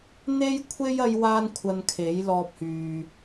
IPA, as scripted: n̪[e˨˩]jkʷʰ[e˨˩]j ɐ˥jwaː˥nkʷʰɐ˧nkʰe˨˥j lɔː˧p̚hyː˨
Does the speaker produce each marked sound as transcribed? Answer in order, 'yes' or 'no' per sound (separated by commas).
no, no